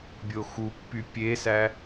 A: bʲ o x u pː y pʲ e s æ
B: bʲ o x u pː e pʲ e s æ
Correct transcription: A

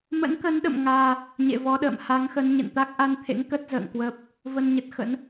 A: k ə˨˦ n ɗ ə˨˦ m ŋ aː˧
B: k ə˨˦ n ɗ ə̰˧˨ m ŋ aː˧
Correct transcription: B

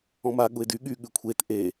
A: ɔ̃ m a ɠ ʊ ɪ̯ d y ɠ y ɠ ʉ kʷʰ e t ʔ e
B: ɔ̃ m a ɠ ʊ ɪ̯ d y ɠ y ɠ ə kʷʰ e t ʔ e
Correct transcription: A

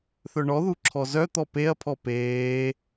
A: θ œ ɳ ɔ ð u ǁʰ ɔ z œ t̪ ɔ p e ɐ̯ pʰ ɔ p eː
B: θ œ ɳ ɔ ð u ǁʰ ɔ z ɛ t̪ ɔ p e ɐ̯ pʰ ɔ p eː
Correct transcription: A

